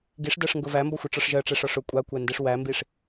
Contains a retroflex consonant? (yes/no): yes